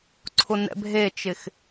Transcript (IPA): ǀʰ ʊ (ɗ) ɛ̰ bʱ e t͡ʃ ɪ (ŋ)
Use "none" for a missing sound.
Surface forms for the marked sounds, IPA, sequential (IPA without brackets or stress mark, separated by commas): n, x